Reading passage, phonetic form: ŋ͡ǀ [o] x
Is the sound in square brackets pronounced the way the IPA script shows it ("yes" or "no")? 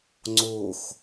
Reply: yes